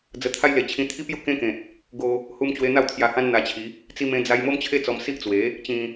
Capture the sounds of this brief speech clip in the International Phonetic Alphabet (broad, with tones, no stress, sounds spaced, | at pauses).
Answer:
d͡z ə˧ t̪ʰ a˦ j l e˨˩ t͡ɕʰ ĩ˧ t̪ʰ i˦ p j u˥˧ k ẽ˦ k ẽ˨ t̚ | ɡ o˧ | h u˧ m t͡ɕ w e˧ n̪ a˥˧ w t̪ʰ j a˧ h ã˦ n n̪ a˧ t͡ɕʰ i˨˦ | t͡s i˦ m ẽ˦ d͡z a˦ j m o˦ m t͡ɕʰ e˦ t͡s ɔ˧ m s i˦ ʔ t͡s w e˨˦ | t͡ɕ ĩ˧